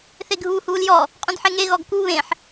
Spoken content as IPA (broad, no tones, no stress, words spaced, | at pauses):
θeɡʱuːhuːljɔ | qʼũdħeŋe ɣɔɡku βẽħ